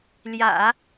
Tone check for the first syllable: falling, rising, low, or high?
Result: low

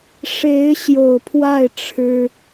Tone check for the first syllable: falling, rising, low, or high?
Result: rising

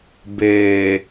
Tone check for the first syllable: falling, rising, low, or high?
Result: low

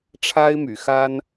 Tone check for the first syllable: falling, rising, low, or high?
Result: high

